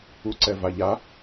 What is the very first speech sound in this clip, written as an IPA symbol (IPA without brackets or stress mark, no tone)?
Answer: u